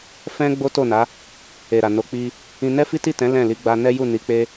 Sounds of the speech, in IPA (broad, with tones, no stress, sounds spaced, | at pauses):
f ɛ̃˦ ɡ͡b o˦ t o˦˨ n a˨˦ | e˨ ɾ a˨ n o˨˦ k͡p i˧ | ĩ˦ n ɛ˦ f i˦ t i˦˨ t ɛ̃˨˦ l ɛ̃˦˨ l i˨˦ ɡ͡b a˧ n ɛ˦ j u˦˨ n i˨˦ k͡p e˦